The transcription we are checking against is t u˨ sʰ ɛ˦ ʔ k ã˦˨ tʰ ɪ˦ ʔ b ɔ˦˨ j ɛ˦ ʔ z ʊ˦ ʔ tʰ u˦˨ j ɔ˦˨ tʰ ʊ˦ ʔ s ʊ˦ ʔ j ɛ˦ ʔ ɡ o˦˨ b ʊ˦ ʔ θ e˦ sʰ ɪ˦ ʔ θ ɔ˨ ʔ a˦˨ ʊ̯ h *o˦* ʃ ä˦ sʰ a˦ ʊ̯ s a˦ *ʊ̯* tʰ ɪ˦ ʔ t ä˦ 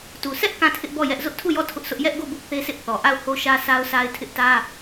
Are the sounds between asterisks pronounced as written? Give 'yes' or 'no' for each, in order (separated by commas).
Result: yes, no